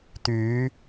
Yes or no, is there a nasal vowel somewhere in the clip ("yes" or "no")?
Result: no